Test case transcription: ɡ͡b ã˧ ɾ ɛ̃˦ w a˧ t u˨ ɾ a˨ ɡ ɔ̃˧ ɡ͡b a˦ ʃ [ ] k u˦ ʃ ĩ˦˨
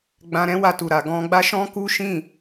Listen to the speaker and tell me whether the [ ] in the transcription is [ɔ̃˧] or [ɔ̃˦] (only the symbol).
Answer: ɔ̃˦